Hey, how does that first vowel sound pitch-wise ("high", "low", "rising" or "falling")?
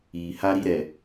low